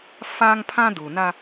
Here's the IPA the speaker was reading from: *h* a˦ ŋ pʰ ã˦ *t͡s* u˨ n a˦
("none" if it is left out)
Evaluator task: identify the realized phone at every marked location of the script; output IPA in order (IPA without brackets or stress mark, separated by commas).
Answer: f, d